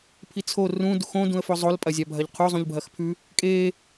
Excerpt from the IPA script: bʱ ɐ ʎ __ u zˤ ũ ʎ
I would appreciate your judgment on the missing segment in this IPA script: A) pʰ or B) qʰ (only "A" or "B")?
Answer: B